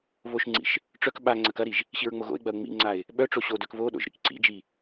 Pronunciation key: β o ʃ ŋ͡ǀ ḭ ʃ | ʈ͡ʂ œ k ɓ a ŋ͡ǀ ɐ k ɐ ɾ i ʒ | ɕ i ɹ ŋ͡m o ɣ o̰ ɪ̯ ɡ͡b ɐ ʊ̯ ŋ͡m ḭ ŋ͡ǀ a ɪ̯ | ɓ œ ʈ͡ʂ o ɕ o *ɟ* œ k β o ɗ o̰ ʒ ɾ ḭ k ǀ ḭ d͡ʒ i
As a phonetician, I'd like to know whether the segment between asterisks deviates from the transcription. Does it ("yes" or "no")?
yes